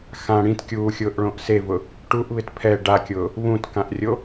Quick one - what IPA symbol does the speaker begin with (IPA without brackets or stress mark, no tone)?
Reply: x